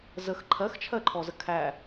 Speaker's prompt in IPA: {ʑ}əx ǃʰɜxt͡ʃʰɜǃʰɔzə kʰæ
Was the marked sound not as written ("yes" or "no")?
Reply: yes